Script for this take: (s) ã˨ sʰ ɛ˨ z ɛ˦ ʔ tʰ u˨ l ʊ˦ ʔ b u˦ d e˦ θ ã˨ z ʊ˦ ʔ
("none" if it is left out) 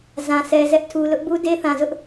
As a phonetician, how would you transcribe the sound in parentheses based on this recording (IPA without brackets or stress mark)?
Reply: z